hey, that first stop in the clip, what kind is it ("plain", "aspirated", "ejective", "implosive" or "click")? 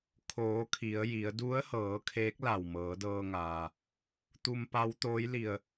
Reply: aspirated